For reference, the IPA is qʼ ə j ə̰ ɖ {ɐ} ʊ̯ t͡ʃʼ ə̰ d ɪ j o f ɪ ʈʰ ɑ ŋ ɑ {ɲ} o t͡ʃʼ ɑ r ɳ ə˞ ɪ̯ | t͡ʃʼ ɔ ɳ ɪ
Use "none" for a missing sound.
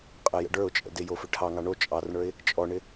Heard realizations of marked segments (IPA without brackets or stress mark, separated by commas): ə˞, ɳ